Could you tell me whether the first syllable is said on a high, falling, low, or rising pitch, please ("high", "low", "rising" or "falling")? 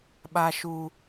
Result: low